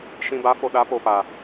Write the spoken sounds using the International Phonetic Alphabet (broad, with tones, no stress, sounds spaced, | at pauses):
ʃ ĩ˨ b a˨˦ f o˨ ɗ a˨˦ p o˨ p a˨